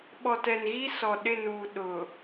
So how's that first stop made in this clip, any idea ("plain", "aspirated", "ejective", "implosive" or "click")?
implosive